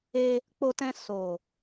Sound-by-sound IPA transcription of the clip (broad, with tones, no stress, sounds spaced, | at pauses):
e˧ | k͡p o˧ t ɛ̃˧ s o˨